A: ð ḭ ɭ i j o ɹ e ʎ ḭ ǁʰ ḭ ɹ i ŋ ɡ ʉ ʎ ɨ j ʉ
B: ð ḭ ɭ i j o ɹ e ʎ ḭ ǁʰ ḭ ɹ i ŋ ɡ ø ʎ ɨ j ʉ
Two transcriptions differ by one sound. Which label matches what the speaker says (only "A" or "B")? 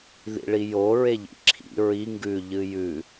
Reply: A